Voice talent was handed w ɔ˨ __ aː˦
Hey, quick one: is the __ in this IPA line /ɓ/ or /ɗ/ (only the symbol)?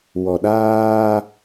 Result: ɗ